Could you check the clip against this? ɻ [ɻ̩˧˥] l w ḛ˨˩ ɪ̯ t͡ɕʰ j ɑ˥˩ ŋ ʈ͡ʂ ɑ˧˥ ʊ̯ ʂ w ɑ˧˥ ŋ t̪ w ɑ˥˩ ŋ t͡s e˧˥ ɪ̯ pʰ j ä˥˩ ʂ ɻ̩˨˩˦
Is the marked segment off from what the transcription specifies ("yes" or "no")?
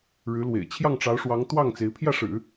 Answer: no